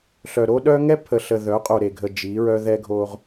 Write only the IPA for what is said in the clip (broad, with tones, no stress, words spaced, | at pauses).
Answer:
ɬœ˨ɾo˦ ɗœ˦ŋɛ˦pʰə˨ɬə˨ ðœ˨˦qʼo˨ɾe˨ɡʱə˨ d͡ʒi˨˦ɹœ˦ ðɛ˦ɡʱo˦ʁ